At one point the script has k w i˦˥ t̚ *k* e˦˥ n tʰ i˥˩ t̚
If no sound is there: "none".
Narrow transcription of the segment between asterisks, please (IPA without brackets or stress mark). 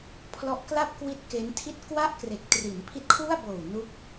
k